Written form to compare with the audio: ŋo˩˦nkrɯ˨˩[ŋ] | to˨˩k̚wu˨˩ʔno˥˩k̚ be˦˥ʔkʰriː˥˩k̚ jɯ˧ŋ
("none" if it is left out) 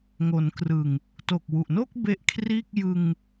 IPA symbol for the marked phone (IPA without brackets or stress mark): ŋ